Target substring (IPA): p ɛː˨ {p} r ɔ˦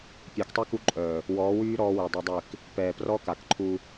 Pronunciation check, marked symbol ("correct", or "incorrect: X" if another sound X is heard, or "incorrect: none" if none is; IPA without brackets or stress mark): correct